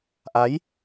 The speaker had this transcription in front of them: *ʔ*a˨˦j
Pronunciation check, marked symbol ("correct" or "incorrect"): correct